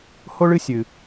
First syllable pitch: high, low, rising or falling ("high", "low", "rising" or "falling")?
high